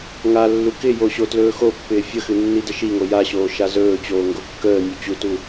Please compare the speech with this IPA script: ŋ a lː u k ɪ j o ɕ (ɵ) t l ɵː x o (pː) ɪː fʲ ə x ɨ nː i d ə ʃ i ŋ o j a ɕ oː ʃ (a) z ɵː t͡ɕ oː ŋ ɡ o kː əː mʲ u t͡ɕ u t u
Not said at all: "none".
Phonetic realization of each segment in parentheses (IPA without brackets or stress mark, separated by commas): o, pː, a